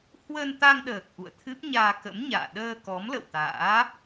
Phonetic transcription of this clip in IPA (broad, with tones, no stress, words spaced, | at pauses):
hwə˧nt̪a˧ŋɗəː˨˩k̚ ʔṵ˧˨ə̯t̪ʰɨ˦˥p̚ ɲaː˧kə̰˧˥mɲa̰ː˧˨ ɗəː˧ kɔ˨˦mlə̰˧˨wt̪a̰ː˧˥